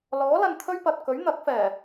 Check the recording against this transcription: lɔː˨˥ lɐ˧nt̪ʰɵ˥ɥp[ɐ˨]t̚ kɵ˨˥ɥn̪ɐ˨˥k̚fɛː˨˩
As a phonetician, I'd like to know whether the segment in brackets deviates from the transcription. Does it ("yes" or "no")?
no